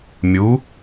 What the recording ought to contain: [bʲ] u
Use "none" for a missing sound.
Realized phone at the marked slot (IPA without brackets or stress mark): mʲ